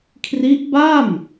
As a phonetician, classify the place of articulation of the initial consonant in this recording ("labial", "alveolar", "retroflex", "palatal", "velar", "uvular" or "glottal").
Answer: velar